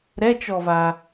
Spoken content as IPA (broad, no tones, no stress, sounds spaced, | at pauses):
ɾ ɛ t͡ʃ ɔ v a